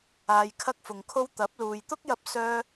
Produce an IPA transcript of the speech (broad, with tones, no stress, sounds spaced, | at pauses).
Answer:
aː˨ j kʰ ɐ˧ k̚ f ʊ˨ ŋ kʰ o˥ w t̪ ɐ˨˥ p̚ l uː˨ j t̪ ʊ˥ k̚ j ɐ˧ p̚ s œː˥